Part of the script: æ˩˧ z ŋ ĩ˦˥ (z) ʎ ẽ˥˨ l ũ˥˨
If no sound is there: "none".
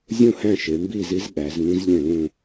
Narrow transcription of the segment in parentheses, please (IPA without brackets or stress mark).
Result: z